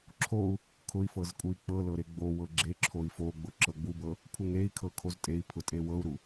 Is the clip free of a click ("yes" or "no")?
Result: no